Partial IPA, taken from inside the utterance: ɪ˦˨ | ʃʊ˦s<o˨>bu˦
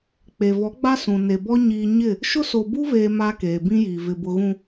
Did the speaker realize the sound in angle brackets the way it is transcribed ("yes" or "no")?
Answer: yes